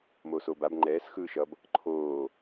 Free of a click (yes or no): no